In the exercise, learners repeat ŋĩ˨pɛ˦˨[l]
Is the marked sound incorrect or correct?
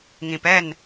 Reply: incorrect